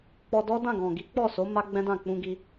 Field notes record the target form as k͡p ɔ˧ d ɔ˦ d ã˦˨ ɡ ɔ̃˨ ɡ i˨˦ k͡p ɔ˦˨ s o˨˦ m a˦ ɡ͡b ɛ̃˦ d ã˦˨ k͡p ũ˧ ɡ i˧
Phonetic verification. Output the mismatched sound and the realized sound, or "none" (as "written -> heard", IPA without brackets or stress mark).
none